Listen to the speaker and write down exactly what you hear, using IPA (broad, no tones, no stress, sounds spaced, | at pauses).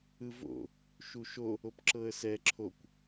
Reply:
ɯ v o̰ | ʃ u ʃ o | o p ǁ ɤ ə̯ s ɛ ǁʰ o kʷ